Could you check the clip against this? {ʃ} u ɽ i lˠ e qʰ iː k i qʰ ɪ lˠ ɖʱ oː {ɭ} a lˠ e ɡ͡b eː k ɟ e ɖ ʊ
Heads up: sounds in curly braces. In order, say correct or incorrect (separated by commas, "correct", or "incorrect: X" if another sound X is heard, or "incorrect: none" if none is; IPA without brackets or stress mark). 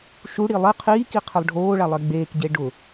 correct, correct